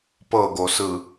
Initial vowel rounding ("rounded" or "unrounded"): unrounded